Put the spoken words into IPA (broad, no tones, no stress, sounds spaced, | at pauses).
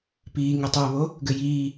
p iː ŋ ɘ tˤ y ə̯ β o | ɡ ɘ j iː